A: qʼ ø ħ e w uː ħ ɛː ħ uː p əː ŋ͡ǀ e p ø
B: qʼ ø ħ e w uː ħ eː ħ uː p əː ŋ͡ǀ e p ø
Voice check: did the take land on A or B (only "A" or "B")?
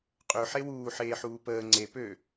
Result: B